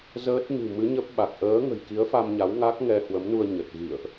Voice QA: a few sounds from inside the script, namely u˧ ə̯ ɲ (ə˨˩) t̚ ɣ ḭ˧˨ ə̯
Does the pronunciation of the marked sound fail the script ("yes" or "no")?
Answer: no